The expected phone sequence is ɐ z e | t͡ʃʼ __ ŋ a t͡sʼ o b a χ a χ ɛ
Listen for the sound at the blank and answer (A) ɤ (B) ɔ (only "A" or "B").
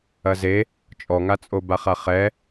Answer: B